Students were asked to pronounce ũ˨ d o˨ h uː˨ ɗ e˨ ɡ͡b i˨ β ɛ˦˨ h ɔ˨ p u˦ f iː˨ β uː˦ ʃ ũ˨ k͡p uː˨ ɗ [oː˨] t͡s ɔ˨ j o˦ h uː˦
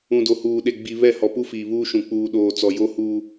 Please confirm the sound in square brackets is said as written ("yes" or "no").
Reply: yes